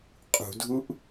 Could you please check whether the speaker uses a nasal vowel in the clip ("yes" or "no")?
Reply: no